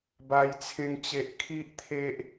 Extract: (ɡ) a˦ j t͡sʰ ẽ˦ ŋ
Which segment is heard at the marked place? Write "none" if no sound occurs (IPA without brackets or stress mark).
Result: b